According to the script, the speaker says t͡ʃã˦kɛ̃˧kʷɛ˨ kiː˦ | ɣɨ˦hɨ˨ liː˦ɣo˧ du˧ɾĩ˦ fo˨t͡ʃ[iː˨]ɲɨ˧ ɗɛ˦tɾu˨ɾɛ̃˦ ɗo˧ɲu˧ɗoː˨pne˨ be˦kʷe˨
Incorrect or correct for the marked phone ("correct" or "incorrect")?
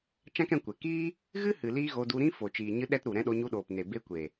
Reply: correct